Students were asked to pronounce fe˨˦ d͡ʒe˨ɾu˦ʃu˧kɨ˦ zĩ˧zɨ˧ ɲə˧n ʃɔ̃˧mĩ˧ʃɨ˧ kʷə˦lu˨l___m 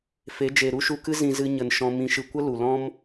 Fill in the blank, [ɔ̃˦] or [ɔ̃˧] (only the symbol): ɔ̃˦